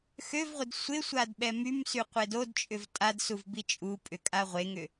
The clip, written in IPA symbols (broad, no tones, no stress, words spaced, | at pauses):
xøvʁʷɪd sʷɪsʷad ɓɛmymsy qʷedodt͡ʃʼʏv tʼadsuv bit͡ʃʼupʼʏ kʼaʁʷeŋʏ